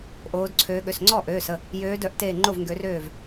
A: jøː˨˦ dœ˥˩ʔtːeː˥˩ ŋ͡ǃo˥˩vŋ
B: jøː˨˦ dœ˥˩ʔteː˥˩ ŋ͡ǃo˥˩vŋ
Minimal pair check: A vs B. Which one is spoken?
B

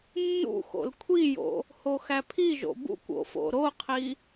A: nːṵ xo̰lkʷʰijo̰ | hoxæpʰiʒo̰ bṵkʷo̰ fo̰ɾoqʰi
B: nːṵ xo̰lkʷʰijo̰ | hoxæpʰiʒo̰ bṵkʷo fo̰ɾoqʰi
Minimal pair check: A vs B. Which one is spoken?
A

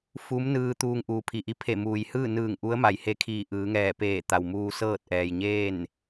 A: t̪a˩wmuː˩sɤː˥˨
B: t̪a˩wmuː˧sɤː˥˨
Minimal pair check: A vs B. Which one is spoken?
B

